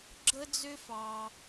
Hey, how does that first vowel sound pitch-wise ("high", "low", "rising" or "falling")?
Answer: high